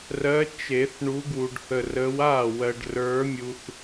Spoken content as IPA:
r ɜ˨˦ t͡ʃ e˨˩˦ θ ɳ u˨˦ ɡ w u˨ ɖ θ ə˨ r ə˨˦ w a˥˩ w ɜ˨ ɖ r ə˞˨˦ mʲ u˨ θ

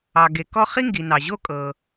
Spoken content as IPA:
ɑ˩ ɡ e˩ k ɔ˥ χ i˥ ŋ ɡ i˩ n ɑ˩ ʑ o˥ kʼ ɤ˩

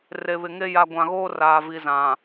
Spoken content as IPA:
r e˨ β ɪ˨ ŋ e˦ j a˨ ɡʷ ã˨ ɣ oː˦ r aː˨ v i˨ z ã˨

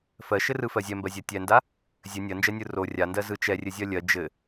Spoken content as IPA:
f ɜ ʃ ɘ r ɯ f ɜ zʲ ɛ m b ɜ zʲ ɜ tʲ ɛ n d a | zʲ ɘ nʲ ɜ n d͡ʒ ɜ nʲ ɯ r o rʲ a n d ɜ z ɯ t͡ʃ ɛ rʲ ɘ zʲ ɜ lʲ ɜ d͡ʒ ɘ

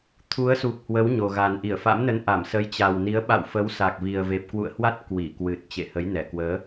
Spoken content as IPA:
t̪ʰ u˨˦ ə̯ s u˨˩ k̚ h w ə˨˦ w ɲ o˨˩ ɣ a˨˩ n ʔ i˧˩ ə̯ f a̰˧˥ m n ə˨˦ n ʔ a˧˩ m s ə˨˦ j t͡ɕ a˨˩ w n i˨˦ ə̯ ɓ a̰˧˨ w f ə˨˦ w s a˨˩ k̚ v i˨˩ ə̯ v e˨˩ p̚ k w ṵ˧˨ ə̯ h w a˦˥ t̚ k w i˧˩ k w ɨ˨˩ t̚ t͡ɕ ḛ˧˨ h ə˨˦ j n ɛ˧˩ k w əː˨˦

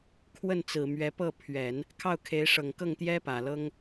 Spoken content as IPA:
kʰ w ə˥˩ n t͡s ɹ̩˨˩ m ɥ ɛ˧˥ p ɤ˥˩ pʰ ɥ ɛ˨˩˦ n | kʰ ɑ˥˩ ʊ̯ kʰ e˧˥ ɪ̯ ʂ ɤ˨˩ ŋ k ɤ˥˩ ŋ t̪ j ɛ˥ p ä˨˩ l ɤ˥ ŋ

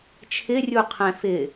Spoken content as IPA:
t͡ʃʰ ɪ rʲ u qʰ ɛ̃ f ɪ

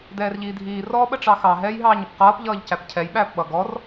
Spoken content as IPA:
d ɛː r ʎ iː dʱ iː r ɔ ɓ ə ʈ͡ʂ ɑ x ɑ ɦ ɛː j ɦ ɑː ɲ ɪ p q ʌː p ʎ ʌː ʎ c æ p cʰ ɛ j ɓ æː p ɓ ʌ ɡ ɔ r

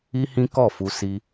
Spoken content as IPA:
i˦ h ĩ˦ k ɔ˦˨ f u˧ s i˧

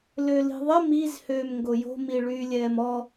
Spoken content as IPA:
l ø l i̤ ðˤ ə m i z h øː m ŋ ɡ o j o̤ m i ɭ yː lʲ ɛː m ɔ

